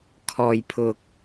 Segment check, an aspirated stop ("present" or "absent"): present